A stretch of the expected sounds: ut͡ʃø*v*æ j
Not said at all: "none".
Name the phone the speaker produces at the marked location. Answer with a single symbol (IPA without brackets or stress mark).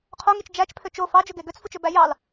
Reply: b